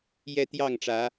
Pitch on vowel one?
high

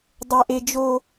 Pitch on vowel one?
high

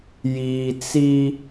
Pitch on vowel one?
low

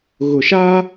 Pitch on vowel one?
low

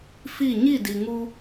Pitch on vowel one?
falling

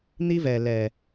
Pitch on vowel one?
high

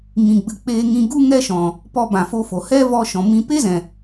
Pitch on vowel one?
low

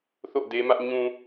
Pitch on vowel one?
falling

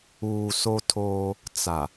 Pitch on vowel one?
low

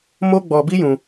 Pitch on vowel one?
high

